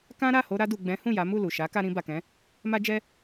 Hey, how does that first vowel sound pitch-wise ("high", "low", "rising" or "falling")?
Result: high